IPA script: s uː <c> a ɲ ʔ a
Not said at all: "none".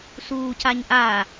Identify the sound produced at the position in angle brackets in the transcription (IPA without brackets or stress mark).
c